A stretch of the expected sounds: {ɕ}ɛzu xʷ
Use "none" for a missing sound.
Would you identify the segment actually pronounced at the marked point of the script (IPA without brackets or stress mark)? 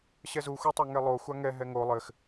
ɕ